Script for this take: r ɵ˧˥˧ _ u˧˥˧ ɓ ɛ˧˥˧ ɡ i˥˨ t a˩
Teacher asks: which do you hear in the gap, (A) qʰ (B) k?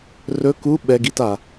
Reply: B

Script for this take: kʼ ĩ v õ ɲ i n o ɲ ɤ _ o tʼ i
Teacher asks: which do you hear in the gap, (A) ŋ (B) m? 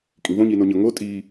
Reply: A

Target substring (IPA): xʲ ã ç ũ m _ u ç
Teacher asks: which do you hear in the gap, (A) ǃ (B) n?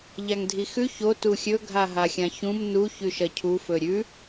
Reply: B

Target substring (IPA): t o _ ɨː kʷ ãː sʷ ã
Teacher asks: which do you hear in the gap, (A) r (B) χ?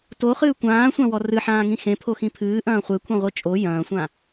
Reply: B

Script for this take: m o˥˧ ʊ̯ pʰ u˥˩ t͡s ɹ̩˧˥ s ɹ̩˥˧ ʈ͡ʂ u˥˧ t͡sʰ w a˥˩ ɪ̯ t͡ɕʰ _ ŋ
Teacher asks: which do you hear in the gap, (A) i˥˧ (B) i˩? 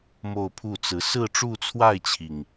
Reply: B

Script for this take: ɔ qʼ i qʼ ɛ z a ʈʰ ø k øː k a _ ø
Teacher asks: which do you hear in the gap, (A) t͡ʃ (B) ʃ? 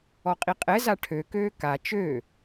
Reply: A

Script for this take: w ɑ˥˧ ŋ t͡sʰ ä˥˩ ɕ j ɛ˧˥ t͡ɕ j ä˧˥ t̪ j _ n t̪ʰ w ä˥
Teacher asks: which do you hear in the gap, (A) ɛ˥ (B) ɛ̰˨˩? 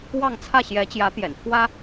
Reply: B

